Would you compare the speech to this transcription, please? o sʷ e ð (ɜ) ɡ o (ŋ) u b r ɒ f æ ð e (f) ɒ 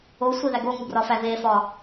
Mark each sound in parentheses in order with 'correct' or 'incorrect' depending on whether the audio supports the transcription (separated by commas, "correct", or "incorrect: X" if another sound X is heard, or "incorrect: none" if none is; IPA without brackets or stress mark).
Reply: incorrect: æ, correct, correct